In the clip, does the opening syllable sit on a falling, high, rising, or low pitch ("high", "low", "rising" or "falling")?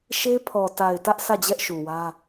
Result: high